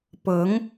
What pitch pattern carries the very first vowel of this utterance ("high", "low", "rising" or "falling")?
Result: rising